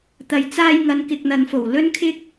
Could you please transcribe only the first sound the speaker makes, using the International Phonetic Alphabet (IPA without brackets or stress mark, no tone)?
t̪